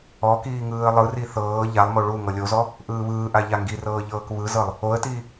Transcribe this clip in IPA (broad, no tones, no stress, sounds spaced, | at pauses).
ɔ k iː ŋ ɯː ə̯ lˠ ɯ r i θ ɤː ʎ a lˠ m o ɭ u ŋ ɤ lʲ o z ɔ | ʔ ɯː β ɯː ʔ a ʎ a ŋ ɡ i r ɤː ʎ ɤː k β ɯ z ɤ lˠ | o ə̯ t iː